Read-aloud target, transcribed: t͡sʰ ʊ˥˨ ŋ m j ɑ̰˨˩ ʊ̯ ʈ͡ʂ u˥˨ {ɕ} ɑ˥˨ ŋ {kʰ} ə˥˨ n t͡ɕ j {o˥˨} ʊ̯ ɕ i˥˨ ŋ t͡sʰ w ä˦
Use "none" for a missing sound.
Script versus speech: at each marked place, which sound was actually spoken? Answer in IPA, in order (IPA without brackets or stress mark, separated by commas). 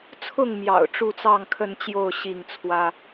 t͡s, kʰ, o˥˨